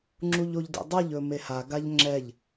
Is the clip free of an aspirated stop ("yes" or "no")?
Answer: yes